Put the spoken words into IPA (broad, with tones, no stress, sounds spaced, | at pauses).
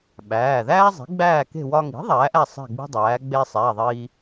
ɓ æː˩˧˩ ð æː˥ zˤ i̤˩˥ ɡ͡b æː˥˨ k e̤˥˨ w ɒ˧ ŋ i̤˩˥ ðˤ æː˩˥ ʔ æ˥˨ sˤ e̤˥˨ ɡ͡b i̤˥ dˤ æː˩˥ ɡ͡b e˧ sˤ æ˩˧˩ ðˤ iː˧